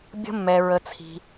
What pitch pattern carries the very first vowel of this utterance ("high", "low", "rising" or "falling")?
high